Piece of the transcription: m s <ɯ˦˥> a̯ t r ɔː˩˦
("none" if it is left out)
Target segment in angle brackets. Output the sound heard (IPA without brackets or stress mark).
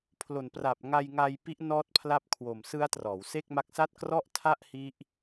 ɯ˦˥